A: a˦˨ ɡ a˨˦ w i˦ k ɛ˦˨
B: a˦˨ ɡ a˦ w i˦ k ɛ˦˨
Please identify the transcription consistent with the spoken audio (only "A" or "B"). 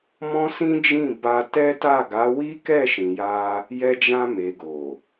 A